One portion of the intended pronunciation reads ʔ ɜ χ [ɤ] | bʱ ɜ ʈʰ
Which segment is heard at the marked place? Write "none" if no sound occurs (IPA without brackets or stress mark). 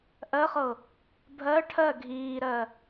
ɤ